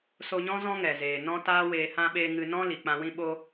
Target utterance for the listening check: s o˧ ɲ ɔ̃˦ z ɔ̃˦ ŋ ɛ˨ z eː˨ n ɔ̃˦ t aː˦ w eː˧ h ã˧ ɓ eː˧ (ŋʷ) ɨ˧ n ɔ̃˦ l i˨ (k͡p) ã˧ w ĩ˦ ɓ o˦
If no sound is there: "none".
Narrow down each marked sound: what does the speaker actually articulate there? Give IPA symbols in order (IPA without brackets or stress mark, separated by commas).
ŋ, k͡p